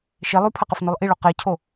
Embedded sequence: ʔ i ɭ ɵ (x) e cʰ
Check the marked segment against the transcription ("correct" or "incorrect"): incorrect